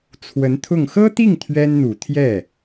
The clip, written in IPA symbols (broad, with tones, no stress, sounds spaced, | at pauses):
t͡sʰ w ə˧˥ n t̪ʰ ʊ˥˩ ŋ x ɤ˥ t̪ i˥˩ ŋ t̪ʰ ɥ ɛ˥ n n̪ u˨˩ t̪ʰ j ɛ˥˩